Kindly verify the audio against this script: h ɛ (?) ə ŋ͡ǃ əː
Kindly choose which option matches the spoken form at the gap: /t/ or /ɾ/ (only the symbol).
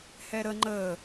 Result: ɾ